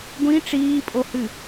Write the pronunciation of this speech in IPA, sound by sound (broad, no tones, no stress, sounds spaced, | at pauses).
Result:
ɡʷ ĩ ʈ͡ʂ iː pʼ o h ɨ